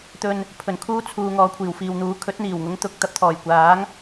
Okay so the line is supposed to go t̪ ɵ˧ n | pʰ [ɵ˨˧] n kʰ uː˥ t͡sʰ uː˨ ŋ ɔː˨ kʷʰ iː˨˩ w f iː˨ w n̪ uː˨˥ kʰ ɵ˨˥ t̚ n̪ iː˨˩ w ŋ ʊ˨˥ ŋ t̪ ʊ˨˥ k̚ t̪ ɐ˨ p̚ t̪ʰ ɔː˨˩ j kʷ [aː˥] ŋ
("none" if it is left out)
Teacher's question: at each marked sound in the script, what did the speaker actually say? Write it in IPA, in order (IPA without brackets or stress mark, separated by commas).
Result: ɵ˨˩, aː˨˥